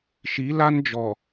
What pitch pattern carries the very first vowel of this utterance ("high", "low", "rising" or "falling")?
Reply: rising